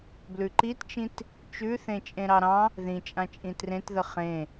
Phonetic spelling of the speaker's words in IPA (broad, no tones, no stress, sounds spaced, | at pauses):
b l ʉ ǃ i t t͡ʃ ĩ t | t͡ʃ ʉ θ ẽ t͡ʃʼ ẽ ɾ ɑ ɾ ɑ̃ | ð ĩ t͡ʃʼ ã t͡ʃʼ ĩ t r ẽ t ð ə χ ẽ